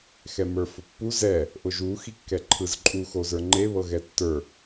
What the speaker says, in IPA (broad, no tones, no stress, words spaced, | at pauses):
xɛmə˞fʊpːu zɛ | ʔʊʒu xikːɛǃʰɯzǃʼu xozə˞ŋ͡ǃe βɤɣɛtːə˞